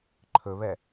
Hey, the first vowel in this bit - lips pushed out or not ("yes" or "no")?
yes